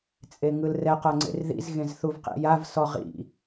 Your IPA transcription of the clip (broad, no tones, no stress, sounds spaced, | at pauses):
t͡sʼ e ŋ ɯ l r ɛ q ɤ ŋ͡ǀ ḛ r ð ḭ z ɣ ẽ z θ u v q ḭ j a v s ɔ ʁ ḭ